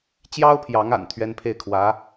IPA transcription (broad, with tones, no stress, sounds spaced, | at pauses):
t͡ɕ j ɑ˥ ʊ̯ pʰ j ɑ˧˥ ŋ a̰˨˩ n t̪ʰ ɥ ɛ˥ n pʰ e˥˩ ɪ̯ kʰ w ä˧˥